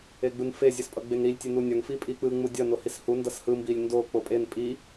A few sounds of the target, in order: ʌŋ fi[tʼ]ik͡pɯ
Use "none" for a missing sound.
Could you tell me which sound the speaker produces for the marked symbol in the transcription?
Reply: pʼ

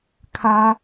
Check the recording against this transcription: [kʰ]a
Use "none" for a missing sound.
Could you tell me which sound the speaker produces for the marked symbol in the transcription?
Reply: kʰ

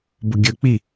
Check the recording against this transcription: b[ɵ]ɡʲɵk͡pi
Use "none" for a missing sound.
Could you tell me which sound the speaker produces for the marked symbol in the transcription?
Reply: ʊ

